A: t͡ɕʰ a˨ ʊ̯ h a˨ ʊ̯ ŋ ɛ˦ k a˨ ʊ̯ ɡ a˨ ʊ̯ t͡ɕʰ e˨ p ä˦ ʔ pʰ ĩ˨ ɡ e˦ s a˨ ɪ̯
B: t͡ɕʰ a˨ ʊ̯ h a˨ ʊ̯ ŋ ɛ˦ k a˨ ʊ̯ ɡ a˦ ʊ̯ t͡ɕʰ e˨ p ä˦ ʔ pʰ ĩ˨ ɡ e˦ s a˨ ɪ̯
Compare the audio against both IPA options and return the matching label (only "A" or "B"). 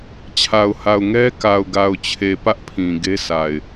A